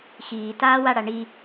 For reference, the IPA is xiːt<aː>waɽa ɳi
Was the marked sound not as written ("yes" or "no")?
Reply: no